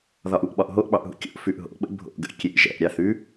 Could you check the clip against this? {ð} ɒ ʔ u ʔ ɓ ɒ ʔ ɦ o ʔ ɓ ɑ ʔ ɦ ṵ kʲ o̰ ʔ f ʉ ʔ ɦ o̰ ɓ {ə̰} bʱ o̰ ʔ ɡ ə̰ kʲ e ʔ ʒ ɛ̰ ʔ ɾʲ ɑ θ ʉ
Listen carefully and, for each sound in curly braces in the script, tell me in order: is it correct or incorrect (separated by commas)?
correct, correct